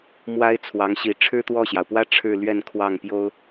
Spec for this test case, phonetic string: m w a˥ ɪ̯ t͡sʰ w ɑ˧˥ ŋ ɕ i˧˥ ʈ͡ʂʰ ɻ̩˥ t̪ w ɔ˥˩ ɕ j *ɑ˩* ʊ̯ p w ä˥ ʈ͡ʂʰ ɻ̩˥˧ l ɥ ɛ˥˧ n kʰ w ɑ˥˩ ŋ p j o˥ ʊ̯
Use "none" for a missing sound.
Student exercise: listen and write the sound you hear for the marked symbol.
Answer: ɑ˩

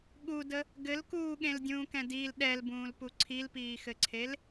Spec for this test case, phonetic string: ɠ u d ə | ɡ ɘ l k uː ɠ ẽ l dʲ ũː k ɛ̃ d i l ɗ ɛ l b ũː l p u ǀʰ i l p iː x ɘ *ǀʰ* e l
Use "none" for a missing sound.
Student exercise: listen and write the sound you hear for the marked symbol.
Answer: ǀʰ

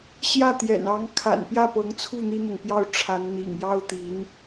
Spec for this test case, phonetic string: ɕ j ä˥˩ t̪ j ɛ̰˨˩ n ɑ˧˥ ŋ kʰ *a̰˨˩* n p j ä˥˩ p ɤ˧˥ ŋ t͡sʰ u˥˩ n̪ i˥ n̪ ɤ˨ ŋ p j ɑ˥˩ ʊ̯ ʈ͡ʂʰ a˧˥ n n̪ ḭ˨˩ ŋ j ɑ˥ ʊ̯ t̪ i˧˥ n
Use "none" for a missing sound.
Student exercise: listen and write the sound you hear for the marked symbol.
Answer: a̰˨˩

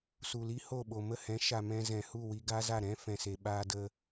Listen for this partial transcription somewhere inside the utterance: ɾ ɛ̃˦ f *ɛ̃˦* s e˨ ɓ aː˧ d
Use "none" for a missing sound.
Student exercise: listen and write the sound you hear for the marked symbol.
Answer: ɛ̃˨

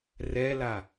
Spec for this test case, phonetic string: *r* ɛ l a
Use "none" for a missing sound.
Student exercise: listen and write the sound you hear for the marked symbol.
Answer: r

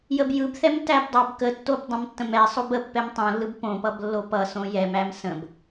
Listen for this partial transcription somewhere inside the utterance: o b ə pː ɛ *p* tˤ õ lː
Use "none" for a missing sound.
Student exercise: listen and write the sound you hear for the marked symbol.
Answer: m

